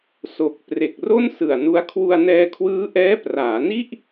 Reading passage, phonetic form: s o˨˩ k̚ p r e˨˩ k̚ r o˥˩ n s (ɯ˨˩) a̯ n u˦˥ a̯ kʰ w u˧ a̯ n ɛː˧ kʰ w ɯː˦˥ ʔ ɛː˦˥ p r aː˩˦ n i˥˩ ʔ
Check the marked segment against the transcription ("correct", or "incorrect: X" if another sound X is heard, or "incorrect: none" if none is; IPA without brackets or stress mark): correct